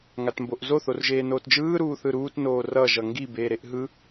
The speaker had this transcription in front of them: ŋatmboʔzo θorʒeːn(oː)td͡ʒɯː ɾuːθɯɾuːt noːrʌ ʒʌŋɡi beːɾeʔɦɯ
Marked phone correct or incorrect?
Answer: correct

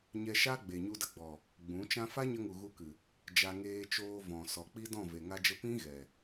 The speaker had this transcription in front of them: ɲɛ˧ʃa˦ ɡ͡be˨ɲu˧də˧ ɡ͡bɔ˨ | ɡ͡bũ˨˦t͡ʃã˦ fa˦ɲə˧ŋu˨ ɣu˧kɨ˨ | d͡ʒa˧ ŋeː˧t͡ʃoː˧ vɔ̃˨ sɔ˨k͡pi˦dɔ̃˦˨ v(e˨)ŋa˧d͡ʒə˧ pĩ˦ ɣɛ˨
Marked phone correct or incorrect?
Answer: correct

